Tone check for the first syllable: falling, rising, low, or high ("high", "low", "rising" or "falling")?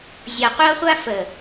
low